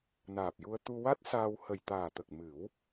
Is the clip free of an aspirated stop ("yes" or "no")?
yes